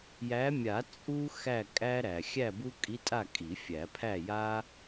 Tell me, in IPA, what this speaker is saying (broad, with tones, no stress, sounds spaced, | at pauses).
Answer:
j æ˨˦ mʲ a˨˩˦ t͡sʼ u˥ x æ˥˨ kʼ æ˥ ɾ æ˩ xʲ æ˥˨ b u˥ kʼ i˧˥˧ tʼ a˥˨ kʼ i˨˩˦ fʲ æ˨˩˦ pʰ æ˥˨ j a˥